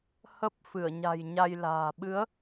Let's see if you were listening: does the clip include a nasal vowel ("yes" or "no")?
no